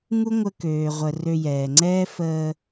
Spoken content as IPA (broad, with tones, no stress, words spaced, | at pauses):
ŋu˥ŋʷə˧ køː˩ʁʷə˩ rø˧jɛː˩ŋ͡ǀɛː˥ fəː˧